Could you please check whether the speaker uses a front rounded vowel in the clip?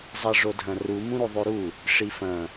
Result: no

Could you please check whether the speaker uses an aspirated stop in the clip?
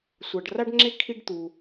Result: yes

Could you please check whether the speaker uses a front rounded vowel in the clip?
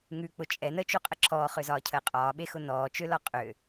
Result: yes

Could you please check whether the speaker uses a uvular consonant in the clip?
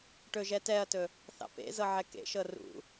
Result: no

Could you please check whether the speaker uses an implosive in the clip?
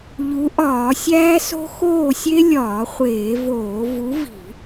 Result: no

